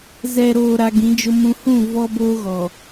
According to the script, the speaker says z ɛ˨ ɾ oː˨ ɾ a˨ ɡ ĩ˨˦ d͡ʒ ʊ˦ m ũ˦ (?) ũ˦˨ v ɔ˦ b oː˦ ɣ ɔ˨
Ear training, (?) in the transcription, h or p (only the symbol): h